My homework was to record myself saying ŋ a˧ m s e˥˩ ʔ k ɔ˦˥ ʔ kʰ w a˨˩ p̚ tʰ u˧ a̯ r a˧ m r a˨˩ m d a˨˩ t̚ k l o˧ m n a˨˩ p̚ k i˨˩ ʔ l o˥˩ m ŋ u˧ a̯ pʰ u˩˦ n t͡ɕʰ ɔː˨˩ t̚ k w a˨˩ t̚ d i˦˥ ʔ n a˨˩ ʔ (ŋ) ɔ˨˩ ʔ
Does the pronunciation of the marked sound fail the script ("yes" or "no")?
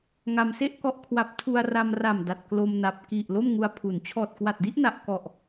yes